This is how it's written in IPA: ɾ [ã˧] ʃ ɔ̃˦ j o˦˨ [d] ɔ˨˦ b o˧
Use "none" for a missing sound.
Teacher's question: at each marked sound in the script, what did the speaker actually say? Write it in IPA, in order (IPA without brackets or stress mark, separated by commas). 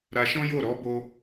a˧, ɾ